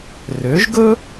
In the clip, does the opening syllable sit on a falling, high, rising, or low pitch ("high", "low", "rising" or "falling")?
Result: rising